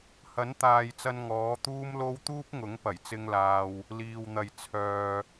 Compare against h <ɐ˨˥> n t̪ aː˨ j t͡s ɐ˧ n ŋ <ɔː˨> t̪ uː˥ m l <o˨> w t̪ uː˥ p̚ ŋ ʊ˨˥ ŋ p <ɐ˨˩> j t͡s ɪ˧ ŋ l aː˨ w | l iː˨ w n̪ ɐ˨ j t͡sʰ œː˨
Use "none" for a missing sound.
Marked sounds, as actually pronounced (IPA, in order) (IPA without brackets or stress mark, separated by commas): ɐ˨˥, ɔː˨˥, o˥, ɐ˨˩